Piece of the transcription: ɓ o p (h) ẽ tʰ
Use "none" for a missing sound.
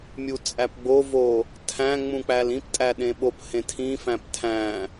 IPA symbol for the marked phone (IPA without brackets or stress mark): h